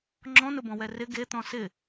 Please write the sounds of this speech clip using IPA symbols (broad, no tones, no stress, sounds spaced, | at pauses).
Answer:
ŋ͡ǁ ɔ̃ n ʊ b ɔ̃ w ɛ r ɪ ɡ e t̪ ɔ̃ s ɪ